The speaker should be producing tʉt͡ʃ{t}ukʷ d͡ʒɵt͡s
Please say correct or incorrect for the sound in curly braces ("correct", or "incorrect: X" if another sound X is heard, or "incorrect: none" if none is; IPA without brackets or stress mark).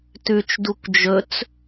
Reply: incorrect: d